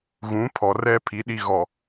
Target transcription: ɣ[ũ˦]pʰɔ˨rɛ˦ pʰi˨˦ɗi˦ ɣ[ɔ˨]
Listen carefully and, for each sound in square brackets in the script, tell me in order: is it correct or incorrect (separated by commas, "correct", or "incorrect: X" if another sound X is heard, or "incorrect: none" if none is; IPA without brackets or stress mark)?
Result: incorrect: ũ˨˦, correct